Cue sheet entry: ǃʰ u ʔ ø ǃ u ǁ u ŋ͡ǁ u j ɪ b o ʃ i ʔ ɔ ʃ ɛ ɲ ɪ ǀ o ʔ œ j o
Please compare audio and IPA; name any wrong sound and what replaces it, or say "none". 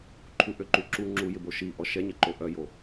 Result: ǀ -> ǃ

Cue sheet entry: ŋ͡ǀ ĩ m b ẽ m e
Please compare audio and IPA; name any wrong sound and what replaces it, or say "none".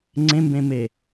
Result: ĩ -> ẽ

